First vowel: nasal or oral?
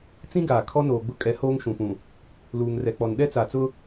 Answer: nasal